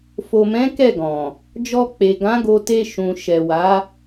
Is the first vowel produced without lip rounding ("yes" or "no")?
no